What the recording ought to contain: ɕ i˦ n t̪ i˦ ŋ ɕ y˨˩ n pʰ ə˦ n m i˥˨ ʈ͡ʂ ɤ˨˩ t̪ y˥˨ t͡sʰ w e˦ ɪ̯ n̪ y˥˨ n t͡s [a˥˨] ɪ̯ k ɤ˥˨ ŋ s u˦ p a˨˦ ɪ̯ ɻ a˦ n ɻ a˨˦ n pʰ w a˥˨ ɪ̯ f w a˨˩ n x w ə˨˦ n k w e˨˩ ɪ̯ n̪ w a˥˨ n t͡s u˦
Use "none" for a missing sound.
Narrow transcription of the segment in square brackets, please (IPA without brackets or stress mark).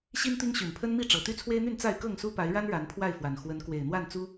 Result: a˥˨